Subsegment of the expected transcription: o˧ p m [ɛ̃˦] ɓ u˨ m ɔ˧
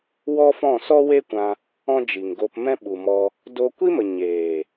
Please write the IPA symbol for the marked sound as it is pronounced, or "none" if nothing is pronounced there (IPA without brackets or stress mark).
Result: ɛ̃˦